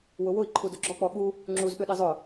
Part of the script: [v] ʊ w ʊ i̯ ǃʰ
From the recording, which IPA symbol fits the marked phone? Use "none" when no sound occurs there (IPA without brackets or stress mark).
w